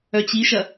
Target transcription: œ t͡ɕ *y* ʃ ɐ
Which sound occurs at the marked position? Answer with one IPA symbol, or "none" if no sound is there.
i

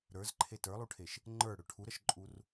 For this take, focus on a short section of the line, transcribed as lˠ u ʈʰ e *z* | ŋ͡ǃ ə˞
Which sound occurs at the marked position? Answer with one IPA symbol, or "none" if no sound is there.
ʃ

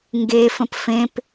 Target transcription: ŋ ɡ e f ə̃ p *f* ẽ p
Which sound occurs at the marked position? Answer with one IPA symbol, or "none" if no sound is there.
f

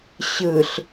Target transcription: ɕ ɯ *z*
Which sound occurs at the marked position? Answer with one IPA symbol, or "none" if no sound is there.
ɬ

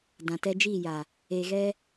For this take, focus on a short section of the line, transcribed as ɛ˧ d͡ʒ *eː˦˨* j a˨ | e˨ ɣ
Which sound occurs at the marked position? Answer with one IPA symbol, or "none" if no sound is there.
iː˦˨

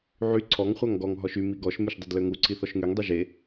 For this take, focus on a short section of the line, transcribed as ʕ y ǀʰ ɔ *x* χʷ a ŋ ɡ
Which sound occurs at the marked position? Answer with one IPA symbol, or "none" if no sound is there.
ŋ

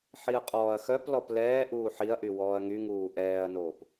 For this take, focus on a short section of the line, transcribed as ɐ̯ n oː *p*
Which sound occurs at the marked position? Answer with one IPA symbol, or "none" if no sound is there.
p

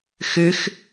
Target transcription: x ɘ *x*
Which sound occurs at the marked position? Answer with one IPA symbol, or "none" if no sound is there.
x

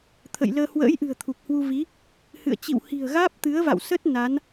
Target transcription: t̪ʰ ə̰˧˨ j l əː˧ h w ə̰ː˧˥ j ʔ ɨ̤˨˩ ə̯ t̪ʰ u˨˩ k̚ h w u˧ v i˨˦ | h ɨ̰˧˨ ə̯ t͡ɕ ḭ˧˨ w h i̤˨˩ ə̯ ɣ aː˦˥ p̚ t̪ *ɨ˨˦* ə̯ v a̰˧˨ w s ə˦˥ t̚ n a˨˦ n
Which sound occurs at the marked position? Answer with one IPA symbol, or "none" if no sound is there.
ɨ˨˦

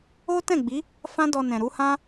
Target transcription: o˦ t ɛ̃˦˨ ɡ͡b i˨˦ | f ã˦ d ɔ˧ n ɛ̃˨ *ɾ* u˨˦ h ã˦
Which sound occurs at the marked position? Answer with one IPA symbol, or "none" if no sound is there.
ɾ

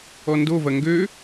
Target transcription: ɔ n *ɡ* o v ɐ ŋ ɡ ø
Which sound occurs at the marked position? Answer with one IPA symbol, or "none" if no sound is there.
d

